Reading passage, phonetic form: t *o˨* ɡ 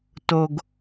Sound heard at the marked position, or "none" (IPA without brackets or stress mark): o˨